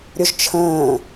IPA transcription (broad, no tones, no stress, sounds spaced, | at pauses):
ɾʲ ʊ ʒ t͡ʃʰ ə̃ː